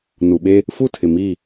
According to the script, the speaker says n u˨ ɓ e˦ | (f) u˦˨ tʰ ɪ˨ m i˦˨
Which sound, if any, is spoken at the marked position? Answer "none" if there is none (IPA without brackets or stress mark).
f